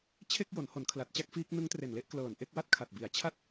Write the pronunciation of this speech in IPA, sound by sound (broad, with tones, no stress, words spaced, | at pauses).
t͡ɕʰe˥˩k̚jo˩˦n ho˩˦nkʰla˨˩t̚t͡ɕa˥˩k̚ fiː˦˥k̚ nɯ˦˥ŋtre˨˩nle˥˩ʔ klɤː˨˩nʔe˥˩k̚wa˥˩t̚kʰa˨˩t̚ bi˩˦a̯t͡ɕʰa˥˩t̚